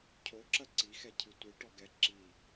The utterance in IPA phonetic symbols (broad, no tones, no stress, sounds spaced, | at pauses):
cʰ o ǁ ɐ ǀ i x ɛ cʰ ɨ tʷ i ʈ ɔ ɡ ɛ ǁ i